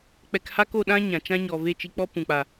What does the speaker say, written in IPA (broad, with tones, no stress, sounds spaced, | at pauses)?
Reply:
k͡p ɛ˧ k h a˦ k o˦˨ ɗ ã˦ ɲ ã˨ t͡ʃ ã˦ ɲ ɔ˨ v e˦˨ t͡ʃ i˧ k͡p ɔ˦ p ũ˨ k͡p a˨